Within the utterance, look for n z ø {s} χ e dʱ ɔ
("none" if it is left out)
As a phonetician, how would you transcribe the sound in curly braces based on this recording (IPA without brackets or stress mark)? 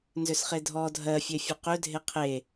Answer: s